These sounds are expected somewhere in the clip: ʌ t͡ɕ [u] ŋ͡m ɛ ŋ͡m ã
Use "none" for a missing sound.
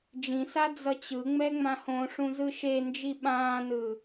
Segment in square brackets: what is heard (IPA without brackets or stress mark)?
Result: ɯ